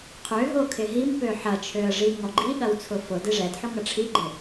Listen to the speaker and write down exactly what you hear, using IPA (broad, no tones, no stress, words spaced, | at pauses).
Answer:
qʰøɦo kʰɪɦimpø ħɐt͡ʃʰøə̯ ʐiŋɔɡ͡ǃiɠɐw t͡sʰʊfʊdɪ ʐɛdħʊ ŋɐʈ͡ʂʰiɡ͡ǃɪ